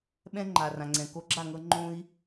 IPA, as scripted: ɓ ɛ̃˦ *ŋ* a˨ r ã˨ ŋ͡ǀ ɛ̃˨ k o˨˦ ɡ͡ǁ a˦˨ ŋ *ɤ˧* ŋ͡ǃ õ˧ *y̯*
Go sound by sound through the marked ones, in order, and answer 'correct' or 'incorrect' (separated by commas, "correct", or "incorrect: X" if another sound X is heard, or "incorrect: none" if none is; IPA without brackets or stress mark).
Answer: incorrect: ŋ͡ǃ, correct, incorrect: i̯